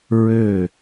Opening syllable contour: falling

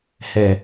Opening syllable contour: low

